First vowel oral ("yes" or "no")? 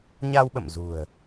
yes